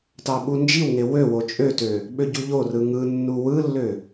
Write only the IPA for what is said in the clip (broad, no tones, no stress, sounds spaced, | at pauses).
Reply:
t ɑ ɓ u n d͡ʒ i w ŋ e w ø w o t͡ʃʼ ø t ø | ɓ ø ɟ u ʎ o r ɯ ŋ ɯ nː u w ɯ lː ø